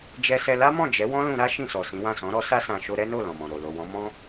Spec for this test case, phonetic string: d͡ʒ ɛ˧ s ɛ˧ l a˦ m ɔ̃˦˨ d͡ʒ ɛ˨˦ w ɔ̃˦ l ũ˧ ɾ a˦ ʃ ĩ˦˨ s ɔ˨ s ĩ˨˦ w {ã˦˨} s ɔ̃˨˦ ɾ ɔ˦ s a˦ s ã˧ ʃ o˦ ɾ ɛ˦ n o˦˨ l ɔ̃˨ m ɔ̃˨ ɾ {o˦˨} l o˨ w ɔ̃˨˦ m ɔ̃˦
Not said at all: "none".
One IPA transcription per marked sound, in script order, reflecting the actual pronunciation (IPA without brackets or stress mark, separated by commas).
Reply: ã˦˨, o˨